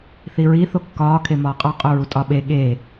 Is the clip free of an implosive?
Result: no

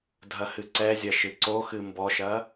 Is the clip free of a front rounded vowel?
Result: yes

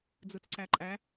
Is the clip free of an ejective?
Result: no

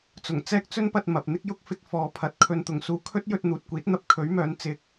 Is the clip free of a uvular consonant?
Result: yes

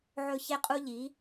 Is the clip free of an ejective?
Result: no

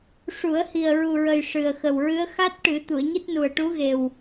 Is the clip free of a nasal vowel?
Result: yes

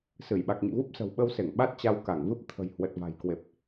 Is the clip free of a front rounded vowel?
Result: yes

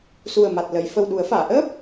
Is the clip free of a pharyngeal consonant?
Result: yes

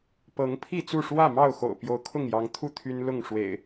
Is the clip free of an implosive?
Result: yes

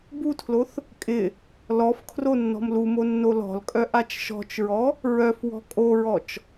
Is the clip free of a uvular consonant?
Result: yes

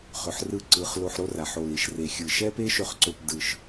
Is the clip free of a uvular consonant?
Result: no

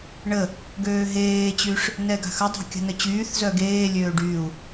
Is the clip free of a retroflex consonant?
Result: no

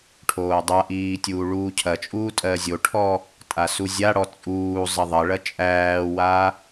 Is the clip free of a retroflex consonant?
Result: no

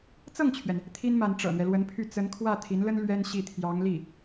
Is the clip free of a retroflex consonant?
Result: no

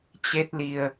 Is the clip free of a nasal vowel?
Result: yes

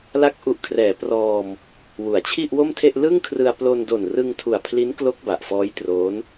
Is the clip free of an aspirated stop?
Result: no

